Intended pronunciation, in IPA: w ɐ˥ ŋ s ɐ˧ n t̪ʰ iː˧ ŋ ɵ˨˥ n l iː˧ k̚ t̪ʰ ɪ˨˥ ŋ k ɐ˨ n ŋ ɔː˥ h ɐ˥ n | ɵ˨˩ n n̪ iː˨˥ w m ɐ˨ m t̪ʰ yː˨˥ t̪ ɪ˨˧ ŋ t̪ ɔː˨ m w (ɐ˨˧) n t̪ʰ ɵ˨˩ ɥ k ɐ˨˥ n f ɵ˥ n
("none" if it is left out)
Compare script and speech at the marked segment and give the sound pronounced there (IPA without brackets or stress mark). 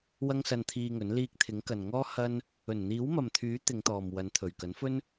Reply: ɐ˨˧